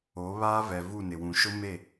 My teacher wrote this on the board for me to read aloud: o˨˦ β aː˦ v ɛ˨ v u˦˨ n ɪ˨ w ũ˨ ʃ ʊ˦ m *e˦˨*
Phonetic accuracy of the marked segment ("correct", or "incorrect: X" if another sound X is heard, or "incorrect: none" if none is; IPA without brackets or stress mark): correct